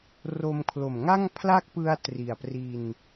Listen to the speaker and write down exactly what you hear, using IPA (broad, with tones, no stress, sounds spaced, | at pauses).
r o˧ m kʰ l o˨˩ m ŋ a˥˩ ŋ pʰ l a˥˩ k̚ p ɯ˧ a̯ t r i˨˩ a̯ p r i˧ n